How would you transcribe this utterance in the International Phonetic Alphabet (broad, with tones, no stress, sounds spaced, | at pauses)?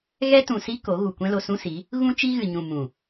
ɣ ɛ˦ t ũ˨ s i˦ k o˨˦ ɣ u˨ kʷ ɛ̃˦ l o˧ s ũ˦ s i˨˦ | ɣ ũ˦ t͡ʃ i˦ ɣ ɨ˨ ɲ ũ˨ m ũ˨